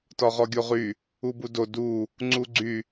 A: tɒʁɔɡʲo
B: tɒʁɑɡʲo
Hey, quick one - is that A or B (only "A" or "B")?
A